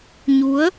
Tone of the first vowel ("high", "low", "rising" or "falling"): rising